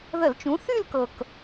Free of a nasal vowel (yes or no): no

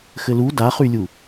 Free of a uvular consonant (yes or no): no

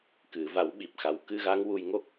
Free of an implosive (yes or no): no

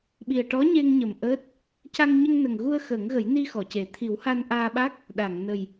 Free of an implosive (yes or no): no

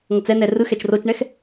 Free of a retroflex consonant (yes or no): no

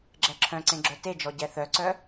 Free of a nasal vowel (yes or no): no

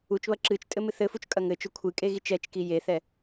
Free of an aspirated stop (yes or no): no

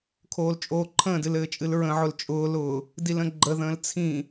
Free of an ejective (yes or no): no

